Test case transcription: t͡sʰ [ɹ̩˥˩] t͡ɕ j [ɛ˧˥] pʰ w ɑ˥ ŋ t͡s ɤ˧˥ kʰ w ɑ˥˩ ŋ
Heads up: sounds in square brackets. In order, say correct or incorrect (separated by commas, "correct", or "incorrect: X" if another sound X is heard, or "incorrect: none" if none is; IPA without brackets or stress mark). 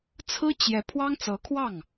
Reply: incorrect: ɹ̩˥, correct